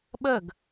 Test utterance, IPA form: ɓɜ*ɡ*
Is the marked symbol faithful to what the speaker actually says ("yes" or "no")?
yes